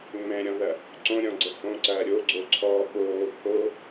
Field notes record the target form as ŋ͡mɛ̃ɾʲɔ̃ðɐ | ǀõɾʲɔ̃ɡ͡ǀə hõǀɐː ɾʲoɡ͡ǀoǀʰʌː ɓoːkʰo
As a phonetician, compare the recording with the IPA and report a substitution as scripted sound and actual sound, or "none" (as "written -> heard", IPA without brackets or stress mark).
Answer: ʌː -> ɔː